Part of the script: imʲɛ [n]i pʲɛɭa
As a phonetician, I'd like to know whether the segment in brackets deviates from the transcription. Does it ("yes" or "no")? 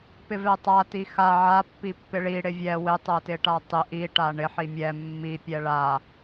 yes